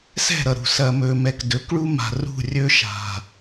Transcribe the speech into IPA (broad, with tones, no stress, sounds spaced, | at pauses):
s ɛ̤˦˨ ɾ ʌ˨ ɾ ṳ˨ s ɐ˨ m ɵ˨ m ɛ˨ k d ɵ˨˦ k ɭ u˦ m a̤˨ r ṳ˦˨ rʲ ɵ˦ ʃ a̤˨